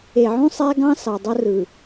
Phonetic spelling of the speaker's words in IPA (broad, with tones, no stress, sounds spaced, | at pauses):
e˨ ʕ ũ˦ sˤ æ˦ ɡ ɑ̃˦ s ɑ˨ dˤ o˦ r ɯ˨